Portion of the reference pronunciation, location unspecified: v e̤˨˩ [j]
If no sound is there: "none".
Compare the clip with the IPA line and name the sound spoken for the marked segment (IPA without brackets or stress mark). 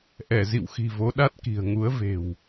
w